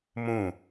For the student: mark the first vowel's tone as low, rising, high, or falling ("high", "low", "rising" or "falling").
falling